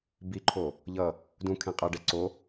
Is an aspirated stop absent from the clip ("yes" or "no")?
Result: no